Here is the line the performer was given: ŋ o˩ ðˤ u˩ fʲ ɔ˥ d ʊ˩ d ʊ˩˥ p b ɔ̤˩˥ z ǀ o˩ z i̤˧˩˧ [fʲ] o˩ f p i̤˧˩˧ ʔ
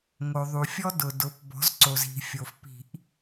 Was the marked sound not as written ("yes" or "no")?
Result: no